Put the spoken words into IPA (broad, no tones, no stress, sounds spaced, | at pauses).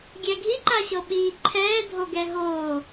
ɡʲ ɛ ɡʱ i ǃ a ɕ ɤ ɓ iː ǃʰ ɛː dʱ o ɡ ɛ ɦ oː